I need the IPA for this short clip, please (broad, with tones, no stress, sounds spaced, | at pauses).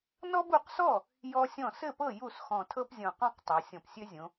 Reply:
n ɔ˦ b u˩˧ q s ɔ˥˩ | j ɔ˦ sʲ ɔ̃˥˩ s ɘ˥˩ p ɤ˥˩ j u˥˩ s x ɔ̃˨˩ tʰ ɤ˦ p zʲ ɔ̃˨˩ q ɔ̃˥˩ q tˤ ɤ˩˧ sʲ ɔ̃˨˩ p sʲ ø˦ zʲ õ˩˧